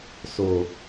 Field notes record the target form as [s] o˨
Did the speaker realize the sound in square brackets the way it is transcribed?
yes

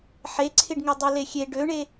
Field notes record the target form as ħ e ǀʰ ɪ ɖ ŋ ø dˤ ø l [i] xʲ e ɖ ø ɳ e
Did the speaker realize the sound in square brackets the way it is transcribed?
no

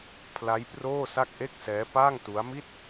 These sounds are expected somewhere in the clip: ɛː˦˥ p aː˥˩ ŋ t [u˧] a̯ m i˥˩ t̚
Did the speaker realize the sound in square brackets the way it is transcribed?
no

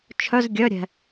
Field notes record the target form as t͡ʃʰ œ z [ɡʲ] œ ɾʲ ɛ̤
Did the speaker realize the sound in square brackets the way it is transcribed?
yes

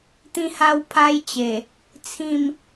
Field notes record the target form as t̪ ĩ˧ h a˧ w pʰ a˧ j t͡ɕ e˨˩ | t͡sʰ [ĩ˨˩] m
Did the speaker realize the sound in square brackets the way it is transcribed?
no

